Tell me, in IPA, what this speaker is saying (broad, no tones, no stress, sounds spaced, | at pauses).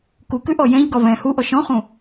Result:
k u k ʉ ʔ ɔ j ɛ̃ ʎ ɡ ɒ v ɛ̃ h u ʔ ɔ ʃ ɔ̃ χ ũ